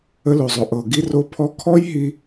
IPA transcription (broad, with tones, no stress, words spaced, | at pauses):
ə˧lo˨zˤo˨ ʔɤ˨ɡi˧ro˧ pʰɔ˧kʰɔ˦jɦi˧